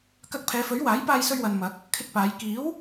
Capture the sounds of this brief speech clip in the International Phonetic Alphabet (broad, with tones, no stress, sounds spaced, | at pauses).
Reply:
k ɐ˧ k̚ pʰ ɛː˨˧ f ɵ˨˥ ɥ w aː˨˥ j p aː˧ j s ɵ˧ ɥ w ɐ˨ n m ɐ˨˥ k̚ | kʰ ɪ˧ k̚ p aː˨˧ j k iː˨˥ w